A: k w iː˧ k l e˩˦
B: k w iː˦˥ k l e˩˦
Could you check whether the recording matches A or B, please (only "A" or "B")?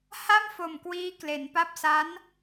B